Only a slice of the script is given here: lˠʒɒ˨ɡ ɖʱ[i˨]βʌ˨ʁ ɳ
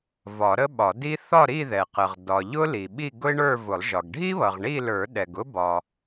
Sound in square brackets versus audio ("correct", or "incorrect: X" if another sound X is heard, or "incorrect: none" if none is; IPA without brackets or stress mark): incorrect: i˥